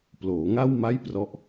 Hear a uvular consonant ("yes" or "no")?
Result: no